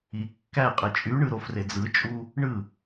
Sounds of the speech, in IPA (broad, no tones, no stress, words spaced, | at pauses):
i kːæqʼe t͡ʃʼyɳɯ ɾofred͡zɯt͡ʃʼu | ɳɯ